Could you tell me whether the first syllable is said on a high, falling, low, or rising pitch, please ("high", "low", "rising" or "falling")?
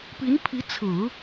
rising